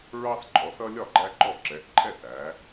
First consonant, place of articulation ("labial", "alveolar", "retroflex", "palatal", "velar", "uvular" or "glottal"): alveolar